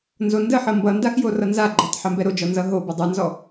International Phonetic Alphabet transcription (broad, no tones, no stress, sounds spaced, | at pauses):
n z o n d ə ħ ʌ m b ʌ n d a x j o r ʌ n z a ɡ͡ǃ o tˤ ħ ɛ m b ɛ ɾ o d͡ʒ ɔ n z ʌ ɦ o b ʌ dˤ ʌ n z ɔ